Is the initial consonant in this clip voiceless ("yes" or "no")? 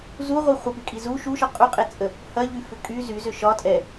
no